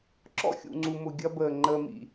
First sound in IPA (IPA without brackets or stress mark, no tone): ǁ